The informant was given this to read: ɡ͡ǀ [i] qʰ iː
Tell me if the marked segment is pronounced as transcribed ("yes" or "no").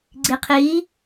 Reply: yes